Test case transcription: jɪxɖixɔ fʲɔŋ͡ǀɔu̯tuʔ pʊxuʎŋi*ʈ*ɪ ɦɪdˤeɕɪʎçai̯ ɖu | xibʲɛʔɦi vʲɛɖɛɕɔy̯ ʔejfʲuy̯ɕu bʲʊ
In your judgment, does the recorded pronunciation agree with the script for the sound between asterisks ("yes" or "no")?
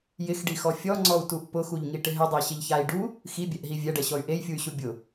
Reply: yes